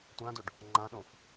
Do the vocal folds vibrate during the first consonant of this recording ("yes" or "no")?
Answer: no